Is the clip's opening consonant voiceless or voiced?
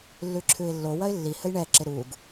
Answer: voiced